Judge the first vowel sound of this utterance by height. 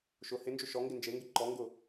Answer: high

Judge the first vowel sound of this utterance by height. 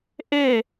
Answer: mid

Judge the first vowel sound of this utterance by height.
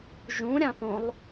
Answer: high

